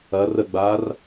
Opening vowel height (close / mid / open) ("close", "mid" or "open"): open